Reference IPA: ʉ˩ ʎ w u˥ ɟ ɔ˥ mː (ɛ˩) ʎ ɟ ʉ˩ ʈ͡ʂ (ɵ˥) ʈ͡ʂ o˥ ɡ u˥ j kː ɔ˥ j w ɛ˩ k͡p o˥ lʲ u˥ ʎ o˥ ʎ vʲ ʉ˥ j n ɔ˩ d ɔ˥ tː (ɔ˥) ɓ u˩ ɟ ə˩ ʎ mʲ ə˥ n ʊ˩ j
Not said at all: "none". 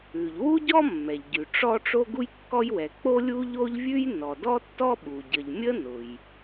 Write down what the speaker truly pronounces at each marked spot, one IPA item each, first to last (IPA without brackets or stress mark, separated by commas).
ɛ˩, ɔ˥, ɔ˥